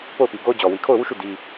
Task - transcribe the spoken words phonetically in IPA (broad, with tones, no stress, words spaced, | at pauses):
po˦˨ʊ̯pi˨ɡo˦ʊ̯d͡ʑɔ˨ wi˨kʰo˦˨ʊ̯wu˦˨ʃu˦˨ di˦